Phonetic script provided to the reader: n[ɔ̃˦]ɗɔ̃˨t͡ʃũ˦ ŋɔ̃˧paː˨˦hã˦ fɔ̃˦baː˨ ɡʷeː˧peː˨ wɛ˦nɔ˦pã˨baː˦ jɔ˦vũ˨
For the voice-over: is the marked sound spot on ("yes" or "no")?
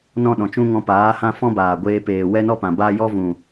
yes